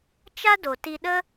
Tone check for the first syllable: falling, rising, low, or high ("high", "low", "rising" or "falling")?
high